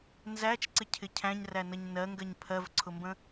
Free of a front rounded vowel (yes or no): yes